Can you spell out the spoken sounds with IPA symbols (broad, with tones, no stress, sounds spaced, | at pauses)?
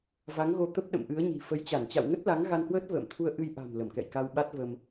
v a˨˦ ŋ ɣ o˧ t̪ ə˦˥ p̚ ɗ ə̰˧˨ m ʔ ɨ˨˦ ə̯ ɲ i̤˨˩ f ə˨˦ j t͡ɕ a˧˩ n t͡ɕ a̰˧˨ w ŋ ə˦˥ t̚ l a˨˦ ŋ ɣ a˧ n h w əː˦˥ t̚ v ə̰ː˧˨ m t̪ʰ u˧ ə̯ ʔ ɨ˧ j ʔ a̤˨˩ m l ə˧˩ m k ɛ̰˧˨ j k a˧ w ɓ a˦˥ t̚ v ə˧ m